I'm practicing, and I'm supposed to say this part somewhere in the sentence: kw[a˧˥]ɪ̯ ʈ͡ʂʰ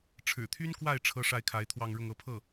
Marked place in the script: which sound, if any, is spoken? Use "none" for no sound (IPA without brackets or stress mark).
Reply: a˥˩